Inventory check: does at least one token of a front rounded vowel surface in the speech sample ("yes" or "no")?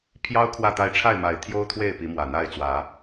no